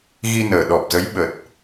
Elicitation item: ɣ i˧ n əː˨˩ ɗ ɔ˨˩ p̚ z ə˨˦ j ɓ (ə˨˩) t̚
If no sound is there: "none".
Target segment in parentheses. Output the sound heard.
ə˨˩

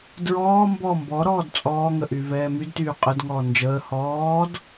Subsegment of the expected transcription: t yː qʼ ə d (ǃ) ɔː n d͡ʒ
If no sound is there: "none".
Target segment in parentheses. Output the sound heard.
ŋ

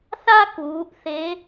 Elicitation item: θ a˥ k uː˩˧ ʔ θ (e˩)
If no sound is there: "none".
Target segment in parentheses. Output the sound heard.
e˧˥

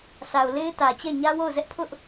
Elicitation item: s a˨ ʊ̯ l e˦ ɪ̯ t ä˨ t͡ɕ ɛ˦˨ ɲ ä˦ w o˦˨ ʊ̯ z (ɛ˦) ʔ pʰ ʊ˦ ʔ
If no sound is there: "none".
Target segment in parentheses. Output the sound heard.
ɛ˦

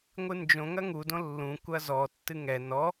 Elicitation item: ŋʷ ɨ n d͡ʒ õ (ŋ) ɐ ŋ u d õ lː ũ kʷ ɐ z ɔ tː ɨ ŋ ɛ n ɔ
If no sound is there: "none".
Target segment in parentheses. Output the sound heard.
ŋ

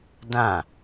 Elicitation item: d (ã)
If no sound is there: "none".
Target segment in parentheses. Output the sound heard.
ã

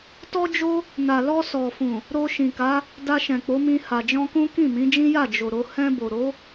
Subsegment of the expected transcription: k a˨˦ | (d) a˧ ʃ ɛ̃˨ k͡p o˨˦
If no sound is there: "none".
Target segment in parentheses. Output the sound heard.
d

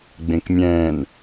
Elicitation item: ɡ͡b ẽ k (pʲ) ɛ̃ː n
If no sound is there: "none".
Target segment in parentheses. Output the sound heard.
mʲ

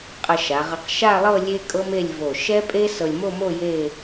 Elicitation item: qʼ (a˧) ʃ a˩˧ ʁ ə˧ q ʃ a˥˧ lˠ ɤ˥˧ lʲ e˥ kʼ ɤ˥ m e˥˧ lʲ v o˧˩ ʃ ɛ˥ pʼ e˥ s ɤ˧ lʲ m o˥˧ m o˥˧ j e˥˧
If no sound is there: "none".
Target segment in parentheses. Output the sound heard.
ə˧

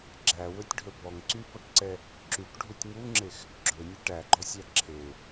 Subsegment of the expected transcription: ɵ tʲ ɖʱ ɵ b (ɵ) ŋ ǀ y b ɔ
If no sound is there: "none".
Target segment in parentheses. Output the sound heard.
ɔ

